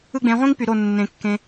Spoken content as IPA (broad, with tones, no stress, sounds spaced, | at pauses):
ɯ˦ ɡ͡b ẽ˨˦ ʁʷ ĩ˦ ŋ p y˨ ɾ o˦˨ nː ẽ˨ kː ẽ˧